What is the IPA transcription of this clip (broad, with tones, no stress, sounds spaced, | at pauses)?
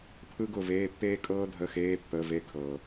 pʰ ɯ˥ ɡ ʊ˦˨ v eː˧˥˧ pː eː˥ kʼ ɤː˥ dʱ ə˧˥˧ x eː˧˥˧ pː ə˧˥˧ v e˦˨ kʰ ɤ˨